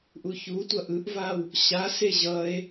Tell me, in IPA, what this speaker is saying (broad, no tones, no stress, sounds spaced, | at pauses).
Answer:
ʔ u ç u tʷ ʌ ʔ ɯ ʔ v a w | ɕ a s e ʑ ʌ e̯